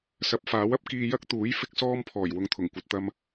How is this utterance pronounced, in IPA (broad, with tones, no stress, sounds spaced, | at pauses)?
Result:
s ɐ˨˥ p̚ f aː˨˥ w ɐ˥ p̚ k iː˧ j ɐ˥ k̚ t̪ uː˨˥ j f ɪ˥ k̚ s ɔː˥ m pʰ ɔː˨˩ j w ʊ˨ ŋ t̪ʰ ʊ˨˩ ŋ kʷ ɐ˧ t̚ t̪ ɐ˥ m